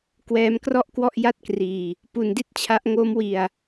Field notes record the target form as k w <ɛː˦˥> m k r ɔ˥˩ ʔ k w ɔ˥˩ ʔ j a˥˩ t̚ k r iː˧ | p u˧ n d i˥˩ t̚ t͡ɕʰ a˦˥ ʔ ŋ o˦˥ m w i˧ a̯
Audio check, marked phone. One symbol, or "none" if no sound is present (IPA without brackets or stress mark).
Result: ɛː˦˥